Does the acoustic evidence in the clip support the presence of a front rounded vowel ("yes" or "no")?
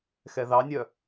yes